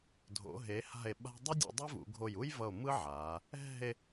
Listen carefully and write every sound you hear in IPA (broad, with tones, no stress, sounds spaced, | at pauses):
dʱ o̰˩˧ ɦ e˩˧ h a̤˧˩ e̯ ɓ a̤˧ dˤ ʌ˥ dʲ o̰˧ dˤ i˥ v ṵ˩˧ ɡʱ o˧˩ j u˥ j v ʌ˧˩ o̯ m ɯ˥ ʕ a˩˧ | ɛ̤˥˧ e̯